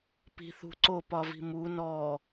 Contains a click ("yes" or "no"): yes